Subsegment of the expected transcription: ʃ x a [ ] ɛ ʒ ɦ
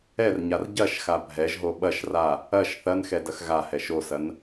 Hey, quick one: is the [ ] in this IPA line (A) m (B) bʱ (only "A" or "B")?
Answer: B